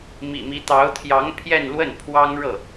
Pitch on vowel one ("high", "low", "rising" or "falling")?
low